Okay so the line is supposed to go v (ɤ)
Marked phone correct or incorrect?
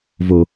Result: incorrect